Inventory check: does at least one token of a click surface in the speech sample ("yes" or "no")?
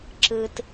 yes